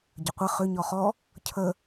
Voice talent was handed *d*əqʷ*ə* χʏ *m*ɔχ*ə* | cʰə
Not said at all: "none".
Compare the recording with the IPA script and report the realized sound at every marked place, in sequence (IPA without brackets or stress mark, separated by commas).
ɟ, ə, ɲ, ɔ